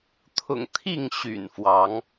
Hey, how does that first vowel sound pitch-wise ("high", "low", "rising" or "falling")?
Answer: low